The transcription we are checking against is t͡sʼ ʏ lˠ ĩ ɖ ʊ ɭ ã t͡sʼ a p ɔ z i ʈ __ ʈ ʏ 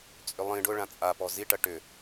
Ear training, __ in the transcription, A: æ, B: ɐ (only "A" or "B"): B